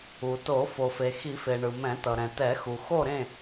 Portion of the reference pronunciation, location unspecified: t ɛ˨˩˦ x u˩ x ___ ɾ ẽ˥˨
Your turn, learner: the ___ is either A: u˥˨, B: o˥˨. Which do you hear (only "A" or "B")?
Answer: B